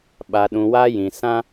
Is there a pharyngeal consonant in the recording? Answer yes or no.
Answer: no